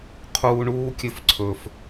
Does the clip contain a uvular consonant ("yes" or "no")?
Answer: yes